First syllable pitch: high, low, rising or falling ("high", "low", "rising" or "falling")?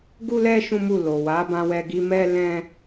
high